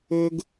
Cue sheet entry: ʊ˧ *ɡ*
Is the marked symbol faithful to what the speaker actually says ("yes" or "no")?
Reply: yes